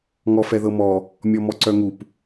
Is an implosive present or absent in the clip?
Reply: absent